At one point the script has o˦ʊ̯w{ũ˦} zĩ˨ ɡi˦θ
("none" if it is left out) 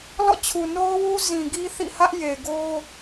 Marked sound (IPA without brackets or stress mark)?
u˦